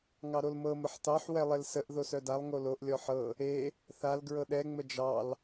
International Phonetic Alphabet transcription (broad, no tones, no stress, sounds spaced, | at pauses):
ŋ ɑ ɾ o l m ɤ m ə ħ t ɑ ħ w ɛ lˠ e l s ə ʔ ð o s œ d a lˠ ŋ o l o ʔ lʲ ɔ ħ ɤ | e | θ a l ɡ ɹ ɤ ɗ ɛ ŋ͡m ə d͡ʒ ɑ l